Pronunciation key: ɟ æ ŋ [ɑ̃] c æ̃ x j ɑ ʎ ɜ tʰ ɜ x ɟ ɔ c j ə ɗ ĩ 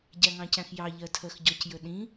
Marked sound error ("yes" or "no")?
no